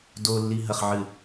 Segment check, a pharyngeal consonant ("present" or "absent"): present